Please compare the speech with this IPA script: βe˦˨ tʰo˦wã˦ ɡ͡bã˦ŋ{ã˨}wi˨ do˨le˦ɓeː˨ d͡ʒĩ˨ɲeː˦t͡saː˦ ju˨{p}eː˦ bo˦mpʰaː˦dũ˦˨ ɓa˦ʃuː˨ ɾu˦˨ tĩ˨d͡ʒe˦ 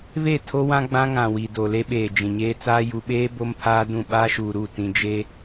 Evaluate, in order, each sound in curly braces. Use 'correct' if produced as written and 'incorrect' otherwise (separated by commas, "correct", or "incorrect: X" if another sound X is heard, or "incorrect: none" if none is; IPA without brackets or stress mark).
correct, incorrect: ɓ